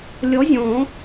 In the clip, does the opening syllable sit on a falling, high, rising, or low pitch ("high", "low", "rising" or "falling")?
rising